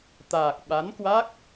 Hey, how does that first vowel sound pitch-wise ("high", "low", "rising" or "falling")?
low